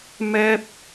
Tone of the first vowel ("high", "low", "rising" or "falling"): high